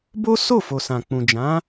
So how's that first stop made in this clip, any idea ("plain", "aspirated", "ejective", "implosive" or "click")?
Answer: plain